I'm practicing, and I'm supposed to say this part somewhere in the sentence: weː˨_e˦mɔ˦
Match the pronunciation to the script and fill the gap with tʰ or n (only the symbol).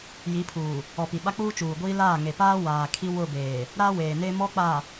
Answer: n